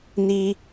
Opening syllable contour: high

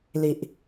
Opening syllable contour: low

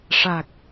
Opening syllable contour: low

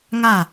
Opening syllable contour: falling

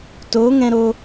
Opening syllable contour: rising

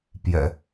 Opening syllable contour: low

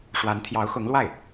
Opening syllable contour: rising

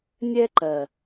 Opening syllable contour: high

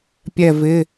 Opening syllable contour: falling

